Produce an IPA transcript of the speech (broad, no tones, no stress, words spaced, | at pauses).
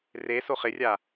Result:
re soχɪrʲa